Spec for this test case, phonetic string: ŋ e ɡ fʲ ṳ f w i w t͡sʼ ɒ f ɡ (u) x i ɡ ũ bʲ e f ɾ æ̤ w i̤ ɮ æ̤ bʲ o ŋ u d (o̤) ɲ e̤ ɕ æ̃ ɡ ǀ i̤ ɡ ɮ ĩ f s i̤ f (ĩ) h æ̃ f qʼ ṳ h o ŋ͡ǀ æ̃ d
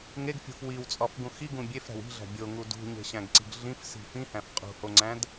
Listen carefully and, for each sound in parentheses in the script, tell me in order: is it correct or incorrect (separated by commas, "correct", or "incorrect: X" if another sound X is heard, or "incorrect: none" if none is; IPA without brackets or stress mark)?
incorrect: ũ, incorrect: ṳ, correct